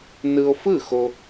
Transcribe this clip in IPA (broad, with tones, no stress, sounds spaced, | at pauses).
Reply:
n ɯ˧ o̯ f ɯ˥˩ x o˧